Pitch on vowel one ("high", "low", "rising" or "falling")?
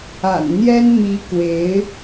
low